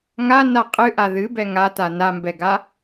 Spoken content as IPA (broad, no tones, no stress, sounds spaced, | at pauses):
ŋ a n a qʼ ɨ ʔ a ð ɨ b ɛ ŋ a t a n a m b ɛ ɡ a